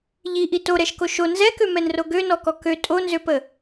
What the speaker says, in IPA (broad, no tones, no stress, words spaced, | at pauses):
ʎiʔi toɾɛʃko ʃo nzɛkømɛnro ɡønɔkɔ kø tʼonzøpə